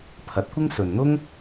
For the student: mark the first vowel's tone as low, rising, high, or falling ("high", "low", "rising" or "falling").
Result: rising